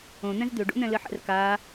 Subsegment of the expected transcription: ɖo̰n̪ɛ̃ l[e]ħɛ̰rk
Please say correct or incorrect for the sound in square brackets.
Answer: incorrect: ɘ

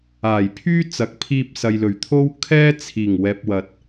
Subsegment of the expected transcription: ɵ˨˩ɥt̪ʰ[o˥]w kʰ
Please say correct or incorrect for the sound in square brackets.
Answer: correct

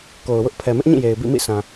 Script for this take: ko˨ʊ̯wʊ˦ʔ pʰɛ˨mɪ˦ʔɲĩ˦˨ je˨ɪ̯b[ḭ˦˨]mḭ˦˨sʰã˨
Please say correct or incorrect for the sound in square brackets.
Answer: correct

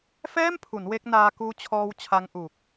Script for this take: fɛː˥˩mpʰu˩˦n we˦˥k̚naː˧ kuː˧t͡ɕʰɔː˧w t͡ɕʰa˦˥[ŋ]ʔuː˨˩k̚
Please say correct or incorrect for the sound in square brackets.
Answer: correct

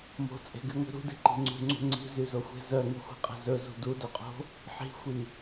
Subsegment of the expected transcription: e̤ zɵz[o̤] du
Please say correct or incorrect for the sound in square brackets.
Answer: incorrect: ṳ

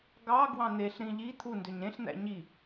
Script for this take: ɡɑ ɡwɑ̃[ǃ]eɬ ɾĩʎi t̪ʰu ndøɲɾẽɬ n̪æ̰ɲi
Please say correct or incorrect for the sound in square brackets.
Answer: incorrect: n̪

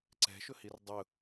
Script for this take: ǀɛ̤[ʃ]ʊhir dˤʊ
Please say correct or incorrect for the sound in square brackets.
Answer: correct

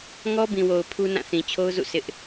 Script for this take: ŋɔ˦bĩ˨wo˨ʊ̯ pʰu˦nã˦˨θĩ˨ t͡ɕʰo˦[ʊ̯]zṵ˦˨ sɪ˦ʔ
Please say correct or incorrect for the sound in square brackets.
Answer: correct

